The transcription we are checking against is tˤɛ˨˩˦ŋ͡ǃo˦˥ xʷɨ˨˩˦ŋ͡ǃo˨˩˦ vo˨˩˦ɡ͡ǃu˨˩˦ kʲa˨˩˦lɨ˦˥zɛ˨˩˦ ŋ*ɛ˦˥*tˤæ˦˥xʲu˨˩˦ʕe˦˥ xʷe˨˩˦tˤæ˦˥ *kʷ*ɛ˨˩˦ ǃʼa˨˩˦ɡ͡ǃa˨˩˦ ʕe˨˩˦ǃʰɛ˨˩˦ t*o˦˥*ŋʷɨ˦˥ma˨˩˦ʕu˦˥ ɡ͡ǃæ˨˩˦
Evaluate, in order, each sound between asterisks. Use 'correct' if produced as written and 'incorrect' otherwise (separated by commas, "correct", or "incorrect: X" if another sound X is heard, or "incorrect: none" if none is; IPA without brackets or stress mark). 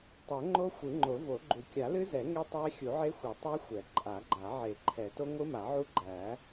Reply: incorrect: e˦˥, incorrect: xʷ, correct